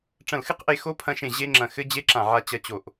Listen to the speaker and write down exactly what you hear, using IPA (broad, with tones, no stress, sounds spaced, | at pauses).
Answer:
ʈ͡ʂ ɐ̃˧˩ l x ɨ˦˥ q ʔ e˧ x o˦˥ pʰ ɐ̃˧ ʃ ẽ˧˩ ʑ e˦˥ ŋ͡ǁ ɐ̃˧˩ x ɘ˦˥ d͡ʑ e˦˥ ǁ ã˧˩ ʕ a˧ t͡ɕ ɐ˧ t͡ɕ o˧˩ ʔ